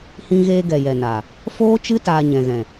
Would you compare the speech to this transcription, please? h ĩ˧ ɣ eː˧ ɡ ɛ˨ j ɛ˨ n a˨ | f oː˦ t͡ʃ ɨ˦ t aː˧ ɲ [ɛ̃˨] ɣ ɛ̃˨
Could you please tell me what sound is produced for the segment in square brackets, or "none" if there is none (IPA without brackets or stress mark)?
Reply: ɛ̃˨